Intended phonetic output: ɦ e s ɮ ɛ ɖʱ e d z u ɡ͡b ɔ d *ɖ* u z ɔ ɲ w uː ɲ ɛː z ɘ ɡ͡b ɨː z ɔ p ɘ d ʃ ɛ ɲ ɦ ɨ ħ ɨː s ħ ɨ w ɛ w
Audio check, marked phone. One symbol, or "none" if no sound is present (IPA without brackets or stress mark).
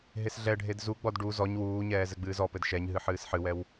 ɖ